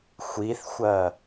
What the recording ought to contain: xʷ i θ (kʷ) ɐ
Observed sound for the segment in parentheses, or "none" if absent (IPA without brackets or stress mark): xʷ